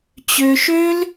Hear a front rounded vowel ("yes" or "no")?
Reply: yes